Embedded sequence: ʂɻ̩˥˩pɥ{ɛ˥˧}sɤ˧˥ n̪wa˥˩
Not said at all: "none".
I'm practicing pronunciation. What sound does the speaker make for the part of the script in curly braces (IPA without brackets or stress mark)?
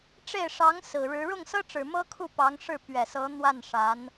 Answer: ɛ˨˩